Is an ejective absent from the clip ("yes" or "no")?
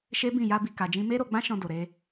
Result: yes